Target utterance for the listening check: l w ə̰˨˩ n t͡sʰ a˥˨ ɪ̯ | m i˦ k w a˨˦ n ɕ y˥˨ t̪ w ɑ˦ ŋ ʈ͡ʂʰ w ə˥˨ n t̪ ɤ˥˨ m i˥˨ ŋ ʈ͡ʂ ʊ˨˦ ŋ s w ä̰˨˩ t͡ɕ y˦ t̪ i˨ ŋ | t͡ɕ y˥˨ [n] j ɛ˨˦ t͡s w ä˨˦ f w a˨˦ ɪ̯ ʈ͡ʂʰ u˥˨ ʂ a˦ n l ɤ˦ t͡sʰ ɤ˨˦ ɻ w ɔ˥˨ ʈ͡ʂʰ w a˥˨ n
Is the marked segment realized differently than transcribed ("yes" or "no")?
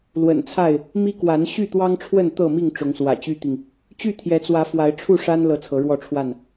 yes